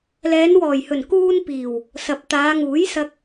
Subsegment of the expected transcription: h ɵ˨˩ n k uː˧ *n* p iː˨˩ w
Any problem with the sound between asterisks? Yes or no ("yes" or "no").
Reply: no